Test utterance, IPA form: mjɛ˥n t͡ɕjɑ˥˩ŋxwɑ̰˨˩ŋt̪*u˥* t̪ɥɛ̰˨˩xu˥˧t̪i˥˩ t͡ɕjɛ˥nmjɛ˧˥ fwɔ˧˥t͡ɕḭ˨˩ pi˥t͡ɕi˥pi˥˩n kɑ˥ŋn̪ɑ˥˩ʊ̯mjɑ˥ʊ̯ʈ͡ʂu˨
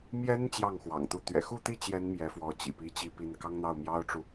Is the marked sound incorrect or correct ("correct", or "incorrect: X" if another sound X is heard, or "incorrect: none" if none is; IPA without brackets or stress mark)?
incorrect: u˥˩